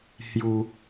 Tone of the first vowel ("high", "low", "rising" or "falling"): high